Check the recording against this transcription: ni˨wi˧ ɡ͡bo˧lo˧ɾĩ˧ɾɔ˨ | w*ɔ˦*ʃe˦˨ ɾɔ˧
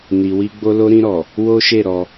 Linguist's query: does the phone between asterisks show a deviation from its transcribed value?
yes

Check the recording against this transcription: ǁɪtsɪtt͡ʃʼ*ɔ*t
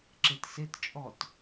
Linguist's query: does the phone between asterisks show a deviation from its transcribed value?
no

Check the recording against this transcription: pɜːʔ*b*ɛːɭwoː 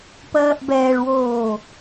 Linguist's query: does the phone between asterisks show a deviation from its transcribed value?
no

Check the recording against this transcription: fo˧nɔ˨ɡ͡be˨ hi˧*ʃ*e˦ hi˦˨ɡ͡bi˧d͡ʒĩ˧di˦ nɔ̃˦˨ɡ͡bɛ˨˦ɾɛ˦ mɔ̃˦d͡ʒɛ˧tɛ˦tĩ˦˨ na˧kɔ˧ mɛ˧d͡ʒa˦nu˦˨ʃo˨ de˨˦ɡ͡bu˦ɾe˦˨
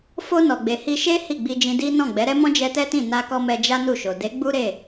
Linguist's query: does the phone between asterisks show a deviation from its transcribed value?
no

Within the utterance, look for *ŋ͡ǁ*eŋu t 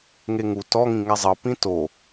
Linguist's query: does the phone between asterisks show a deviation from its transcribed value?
yes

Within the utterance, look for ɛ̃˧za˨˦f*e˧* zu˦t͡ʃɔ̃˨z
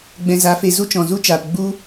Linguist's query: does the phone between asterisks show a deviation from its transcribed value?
no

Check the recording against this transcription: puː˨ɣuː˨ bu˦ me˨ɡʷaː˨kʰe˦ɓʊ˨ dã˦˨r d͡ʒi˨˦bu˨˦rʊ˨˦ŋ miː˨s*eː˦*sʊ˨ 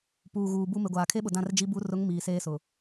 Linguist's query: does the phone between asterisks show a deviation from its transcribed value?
no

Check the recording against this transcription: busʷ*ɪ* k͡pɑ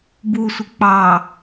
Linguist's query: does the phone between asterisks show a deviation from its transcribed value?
no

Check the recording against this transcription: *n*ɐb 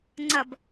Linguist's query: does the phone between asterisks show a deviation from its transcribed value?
yes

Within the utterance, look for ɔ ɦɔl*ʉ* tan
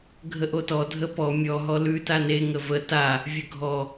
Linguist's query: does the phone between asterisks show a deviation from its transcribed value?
no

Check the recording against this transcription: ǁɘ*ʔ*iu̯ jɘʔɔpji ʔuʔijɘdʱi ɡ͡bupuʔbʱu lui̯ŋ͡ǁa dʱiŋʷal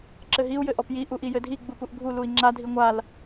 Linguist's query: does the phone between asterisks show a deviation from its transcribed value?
yes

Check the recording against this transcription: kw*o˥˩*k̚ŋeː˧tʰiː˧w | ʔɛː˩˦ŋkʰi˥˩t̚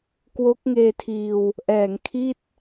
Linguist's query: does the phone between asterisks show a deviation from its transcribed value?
yes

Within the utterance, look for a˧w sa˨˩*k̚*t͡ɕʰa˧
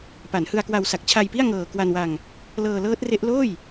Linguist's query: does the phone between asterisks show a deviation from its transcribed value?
no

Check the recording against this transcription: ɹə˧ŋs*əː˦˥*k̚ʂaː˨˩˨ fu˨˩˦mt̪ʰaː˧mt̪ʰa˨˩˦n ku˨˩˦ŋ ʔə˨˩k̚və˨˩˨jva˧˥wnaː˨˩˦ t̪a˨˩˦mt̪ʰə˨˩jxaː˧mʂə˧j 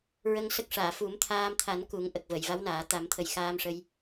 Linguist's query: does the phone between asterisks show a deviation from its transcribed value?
yes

